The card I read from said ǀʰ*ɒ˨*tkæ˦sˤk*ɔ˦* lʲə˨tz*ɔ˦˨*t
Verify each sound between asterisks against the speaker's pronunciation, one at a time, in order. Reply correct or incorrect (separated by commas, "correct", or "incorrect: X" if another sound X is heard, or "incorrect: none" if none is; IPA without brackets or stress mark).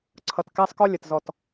incorrect: ʌ˨, correct, correct